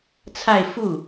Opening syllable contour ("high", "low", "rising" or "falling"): falling